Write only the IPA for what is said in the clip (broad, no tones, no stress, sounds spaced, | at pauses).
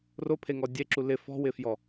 r o pʰ e ŋ ɔ dʲ e ǁ u l ɪ f ɔ̤ w ɪ f j ɔ